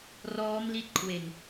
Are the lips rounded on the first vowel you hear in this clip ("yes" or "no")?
yes